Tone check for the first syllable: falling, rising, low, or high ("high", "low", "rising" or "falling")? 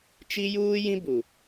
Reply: high